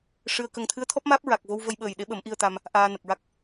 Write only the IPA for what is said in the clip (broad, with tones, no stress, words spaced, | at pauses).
ʂɨ˧ə̯kə˧ŋ t̪ʰɨ˧˥ə̯t̪ʰɔ˦˥p̚maː˦˥p̚ ɹa˨˩k̚vo˧wvə˧jɓəː˨˩j ɗe˧˥ɓə˨˩˦mʔi˧ə̯t̪a˧m | ʔaː˧nə˨˩k̚ɹa˦˥k̚